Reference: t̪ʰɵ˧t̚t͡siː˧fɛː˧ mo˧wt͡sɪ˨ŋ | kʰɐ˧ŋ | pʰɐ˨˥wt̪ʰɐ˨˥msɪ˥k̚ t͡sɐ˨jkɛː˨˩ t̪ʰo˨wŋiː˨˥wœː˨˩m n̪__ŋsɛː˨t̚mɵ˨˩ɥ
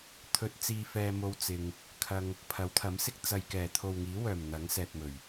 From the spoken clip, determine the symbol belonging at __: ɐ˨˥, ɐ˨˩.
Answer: ɐ˨˥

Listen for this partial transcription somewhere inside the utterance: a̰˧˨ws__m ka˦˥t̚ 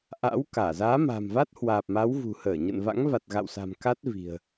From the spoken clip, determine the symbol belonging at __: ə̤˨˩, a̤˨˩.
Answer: a̤˨˩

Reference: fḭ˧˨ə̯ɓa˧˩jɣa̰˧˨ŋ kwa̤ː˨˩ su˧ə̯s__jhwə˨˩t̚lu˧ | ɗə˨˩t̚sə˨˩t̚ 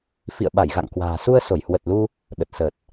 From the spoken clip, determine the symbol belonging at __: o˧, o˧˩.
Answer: o˧˩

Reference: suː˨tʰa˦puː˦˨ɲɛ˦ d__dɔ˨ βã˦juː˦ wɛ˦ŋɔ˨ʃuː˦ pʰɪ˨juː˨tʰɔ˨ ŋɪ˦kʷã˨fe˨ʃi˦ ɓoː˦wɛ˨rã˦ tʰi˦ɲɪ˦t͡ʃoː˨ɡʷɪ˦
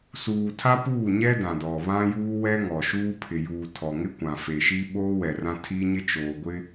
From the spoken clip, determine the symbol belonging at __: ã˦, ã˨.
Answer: ã˨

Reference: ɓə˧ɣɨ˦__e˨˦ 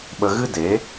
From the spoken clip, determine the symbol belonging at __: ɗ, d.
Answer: d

